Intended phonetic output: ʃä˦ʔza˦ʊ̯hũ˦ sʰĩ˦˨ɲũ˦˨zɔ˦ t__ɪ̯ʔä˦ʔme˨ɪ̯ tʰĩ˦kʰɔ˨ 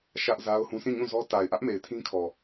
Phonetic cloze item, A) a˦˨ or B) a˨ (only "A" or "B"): B